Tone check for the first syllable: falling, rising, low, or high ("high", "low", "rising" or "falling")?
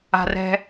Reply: low